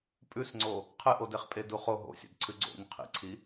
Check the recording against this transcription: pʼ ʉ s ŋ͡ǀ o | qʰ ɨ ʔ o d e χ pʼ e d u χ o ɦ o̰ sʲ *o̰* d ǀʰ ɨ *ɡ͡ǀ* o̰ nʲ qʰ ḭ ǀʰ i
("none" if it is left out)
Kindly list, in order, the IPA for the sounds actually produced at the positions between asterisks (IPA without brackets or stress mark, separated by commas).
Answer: o̰, ɡ͡ǀ